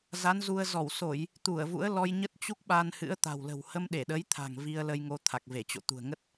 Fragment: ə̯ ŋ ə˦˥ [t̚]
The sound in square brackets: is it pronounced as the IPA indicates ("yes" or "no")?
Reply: yes